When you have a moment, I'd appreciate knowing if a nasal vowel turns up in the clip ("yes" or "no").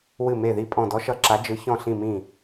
yes